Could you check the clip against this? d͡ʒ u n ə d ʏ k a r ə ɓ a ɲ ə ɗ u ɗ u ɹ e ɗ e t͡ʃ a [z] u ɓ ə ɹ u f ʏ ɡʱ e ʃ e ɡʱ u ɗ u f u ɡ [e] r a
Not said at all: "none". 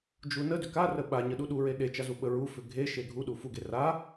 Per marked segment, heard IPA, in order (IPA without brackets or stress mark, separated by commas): z, e